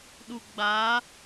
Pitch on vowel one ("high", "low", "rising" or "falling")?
low